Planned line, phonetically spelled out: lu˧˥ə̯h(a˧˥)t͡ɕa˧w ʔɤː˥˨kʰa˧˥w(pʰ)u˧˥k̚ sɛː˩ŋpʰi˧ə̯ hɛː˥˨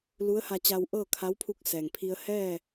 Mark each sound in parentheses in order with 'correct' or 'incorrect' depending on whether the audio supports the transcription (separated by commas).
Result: incorrect, correct